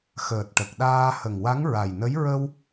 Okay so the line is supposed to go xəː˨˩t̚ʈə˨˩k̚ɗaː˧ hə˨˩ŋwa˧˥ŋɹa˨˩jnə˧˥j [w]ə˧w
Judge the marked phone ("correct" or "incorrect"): incorrect